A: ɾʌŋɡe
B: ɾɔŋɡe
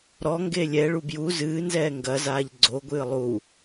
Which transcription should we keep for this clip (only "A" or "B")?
B